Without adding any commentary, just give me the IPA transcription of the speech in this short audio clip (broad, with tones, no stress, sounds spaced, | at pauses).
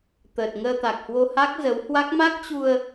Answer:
t̪ əː˨˩ t̚ ŋ əː˧ t̪ a˨˩ k̚ h w o˧ h a˦˥ k̚ z ə˨˦ w h w a˦˥ k̚ m a˦˥ k̚ t͡ɕ u˧ ə̯